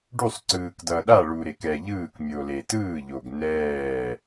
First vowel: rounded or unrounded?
rounded